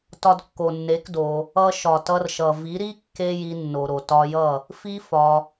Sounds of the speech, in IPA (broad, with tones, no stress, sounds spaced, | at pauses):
t ɒ˧ d kː o˨ nː e˨˦ k d o˧ | ʌ˧ ʃ ɒ˨ t ʌ˧ r ʃ ʌ˨ v i˨˦ ɾ i˦ kː e˦ j i˧ nː o˨ ɾ o˨ t ɒ˧ j ʌ˦˨ | f i˦ f ɒ˧